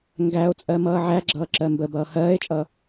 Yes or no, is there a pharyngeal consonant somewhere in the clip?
yes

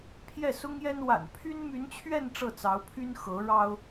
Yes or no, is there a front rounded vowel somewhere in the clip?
yes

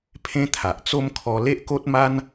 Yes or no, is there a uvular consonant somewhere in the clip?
no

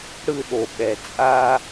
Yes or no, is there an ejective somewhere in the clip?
yes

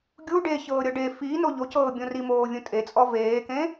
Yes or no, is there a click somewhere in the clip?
no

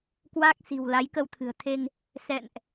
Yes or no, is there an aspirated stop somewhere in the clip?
yes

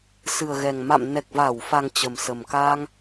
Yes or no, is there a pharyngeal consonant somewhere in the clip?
no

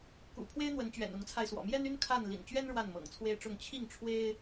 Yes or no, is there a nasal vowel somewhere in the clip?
no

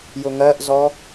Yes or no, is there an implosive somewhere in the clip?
no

